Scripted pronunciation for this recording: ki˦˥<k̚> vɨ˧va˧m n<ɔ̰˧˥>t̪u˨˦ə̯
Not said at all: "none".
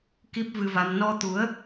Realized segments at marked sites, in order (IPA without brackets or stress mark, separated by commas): p̚, ɔ˧